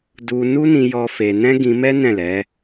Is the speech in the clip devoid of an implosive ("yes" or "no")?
yes